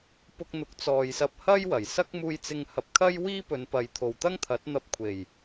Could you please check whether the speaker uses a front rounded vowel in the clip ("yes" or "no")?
no